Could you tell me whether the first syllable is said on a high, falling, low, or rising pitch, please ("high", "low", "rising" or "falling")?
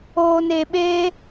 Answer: low